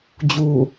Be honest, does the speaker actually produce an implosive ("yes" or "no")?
no